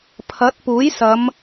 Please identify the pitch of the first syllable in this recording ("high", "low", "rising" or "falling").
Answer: rising